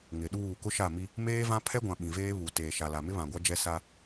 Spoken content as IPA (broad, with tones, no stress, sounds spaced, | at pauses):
ŋ ɪ˨ ɗ uː˦˨ k ʊ˦ ʃ a˦˨ m i˦ | m eː˦ v ã˦ pʰ ɛ˦ ɡʷ ã˨ ɓ ĩ˨ v eː˦ β u˨ t eː˨ ʃ a˨ l a˨ m ɪ˦ β ã˨ ɡʷ a˦ d͡ʒ ɛ˦ s a˦